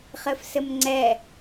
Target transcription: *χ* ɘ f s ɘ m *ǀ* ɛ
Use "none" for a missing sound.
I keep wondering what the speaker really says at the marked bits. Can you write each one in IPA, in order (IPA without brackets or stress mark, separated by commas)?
χ, ŋ͡ǀ